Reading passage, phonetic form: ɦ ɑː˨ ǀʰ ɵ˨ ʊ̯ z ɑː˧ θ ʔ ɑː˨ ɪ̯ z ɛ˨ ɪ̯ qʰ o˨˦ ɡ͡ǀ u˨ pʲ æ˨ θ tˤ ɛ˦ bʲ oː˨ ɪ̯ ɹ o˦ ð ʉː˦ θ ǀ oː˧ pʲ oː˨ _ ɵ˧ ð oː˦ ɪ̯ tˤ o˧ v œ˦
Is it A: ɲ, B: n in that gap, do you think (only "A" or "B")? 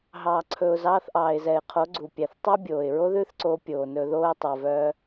B